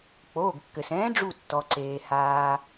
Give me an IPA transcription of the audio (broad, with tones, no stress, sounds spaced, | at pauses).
k͡p oː˩˧˩ ɡ kː ɘ˩ s ɛ̃ː˨˥ ɖ͡ʐ u˧˩ tː ɔ˩ ǀ eː˩ h aː˩